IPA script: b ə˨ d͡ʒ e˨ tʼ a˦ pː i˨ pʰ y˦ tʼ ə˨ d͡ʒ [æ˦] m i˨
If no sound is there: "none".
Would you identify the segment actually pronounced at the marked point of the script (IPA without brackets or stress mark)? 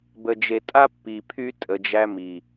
æ˦